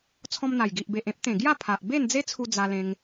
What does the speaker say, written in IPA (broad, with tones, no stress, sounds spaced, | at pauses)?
t͡sʰ ɔ̃˧ m n̪ a˨˩ j ɡ i˨ ʔ b e˨ ʔ ẽ˦ p̚ t̪ ẽ˨˩ ɡ j a˥˧ pʰ a˨ ʔ b e˥˧ n d͡z e˦ t͡sʰ u˧ d͡z a˧ l ẽ˧ ŋ